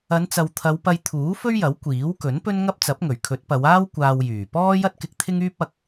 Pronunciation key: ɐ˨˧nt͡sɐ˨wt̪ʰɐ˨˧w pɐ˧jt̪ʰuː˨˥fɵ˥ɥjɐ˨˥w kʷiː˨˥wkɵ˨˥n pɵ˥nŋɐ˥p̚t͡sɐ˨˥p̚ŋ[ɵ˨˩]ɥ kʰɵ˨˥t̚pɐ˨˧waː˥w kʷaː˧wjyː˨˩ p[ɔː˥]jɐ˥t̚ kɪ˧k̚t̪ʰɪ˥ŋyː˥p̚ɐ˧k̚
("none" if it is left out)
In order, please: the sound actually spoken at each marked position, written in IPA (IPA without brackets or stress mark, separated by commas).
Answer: ɵ˨˩, ɔː˥